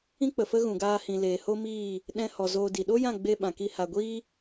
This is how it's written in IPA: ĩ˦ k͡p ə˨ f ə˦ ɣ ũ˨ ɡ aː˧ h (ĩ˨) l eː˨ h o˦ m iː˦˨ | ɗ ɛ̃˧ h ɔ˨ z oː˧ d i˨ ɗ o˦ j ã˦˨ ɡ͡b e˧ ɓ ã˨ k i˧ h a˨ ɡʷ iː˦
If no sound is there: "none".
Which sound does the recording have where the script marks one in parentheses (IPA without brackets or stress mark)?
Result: ĩ˨